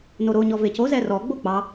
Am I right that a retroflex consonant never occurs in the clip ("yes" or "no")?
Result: yes